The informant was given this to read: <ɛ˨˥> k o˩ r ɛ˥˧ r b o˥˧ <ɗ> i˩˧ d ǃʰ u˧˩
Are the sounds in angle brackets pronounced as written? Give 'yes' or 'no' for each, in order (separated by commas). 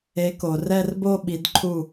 no, no